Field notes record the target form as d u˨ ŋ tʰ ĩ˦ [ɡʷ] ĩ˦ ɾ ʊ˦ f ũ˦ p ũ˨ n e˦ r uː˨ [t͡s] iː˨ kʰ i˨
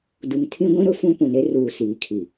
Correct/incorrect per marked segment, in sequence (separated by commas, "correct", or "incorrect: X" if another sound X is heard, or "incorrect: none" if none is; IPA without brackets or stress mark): correct, incorrect: s